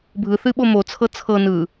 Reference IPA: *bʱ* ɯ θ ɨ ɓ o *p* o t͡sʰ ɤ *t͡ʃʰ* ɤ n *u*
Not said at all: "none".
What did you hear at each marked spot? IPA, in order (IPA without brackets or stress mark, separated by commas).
bʱ, m, t͡sʰ, ɯ